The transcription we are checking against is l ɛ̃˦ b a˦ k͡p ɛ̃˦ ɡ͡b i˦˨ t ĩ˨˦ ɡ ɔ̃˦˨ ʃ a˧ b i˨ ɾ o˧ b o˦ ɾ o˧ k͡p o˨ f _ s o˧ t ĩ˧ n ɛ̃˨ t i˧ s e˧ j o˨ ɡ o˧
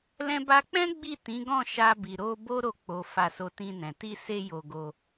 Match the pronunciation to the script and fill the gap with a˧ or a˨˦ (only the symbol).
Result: a˧